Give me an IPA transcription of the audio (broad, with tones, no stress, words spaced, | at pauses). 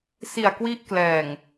si˨˩a̯kwi˦˥ʔklɛː˨˩ŋ